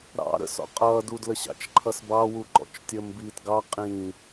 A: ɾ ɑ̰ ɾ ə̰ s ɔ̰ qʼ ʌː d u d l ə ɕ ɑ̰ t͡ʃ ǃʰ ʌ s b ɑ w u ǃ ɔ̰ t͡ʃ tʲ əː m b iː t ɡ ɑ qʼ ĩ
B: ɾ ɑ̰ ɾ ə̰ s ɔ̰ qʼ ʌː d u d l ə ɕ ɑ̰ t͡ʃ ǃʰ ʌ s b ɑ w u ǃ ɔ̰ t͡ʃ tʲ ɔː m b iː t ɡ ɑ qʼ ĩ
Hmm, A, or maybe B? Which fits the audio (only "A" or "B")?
A